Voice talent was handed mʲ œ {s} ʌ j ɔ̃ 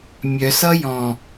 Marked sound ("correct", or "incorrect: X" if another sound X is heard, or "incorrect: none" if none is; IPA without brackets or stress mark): correct